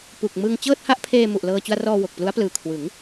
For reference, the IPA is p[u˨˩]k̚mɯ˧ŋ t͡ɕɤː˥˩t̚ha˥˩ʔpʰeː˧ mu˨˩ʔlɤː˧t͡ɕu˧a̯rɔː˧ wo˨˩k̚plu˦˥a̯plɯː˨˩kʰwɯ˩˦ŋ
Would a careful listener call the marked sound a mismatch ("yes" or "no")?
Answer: no